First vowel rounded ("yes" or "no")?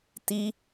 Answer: no